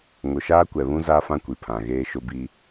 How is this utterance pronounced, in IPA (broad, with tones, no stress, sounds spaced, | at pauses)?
ŋ ʊ˨ ʃ aː˦ kʷ ɛ˨ β ũ˦ z a˦ f ã˦ kʷ i˨ pʰ ã˨ ɣ eː˦ ʃ ʊ˦ b i˦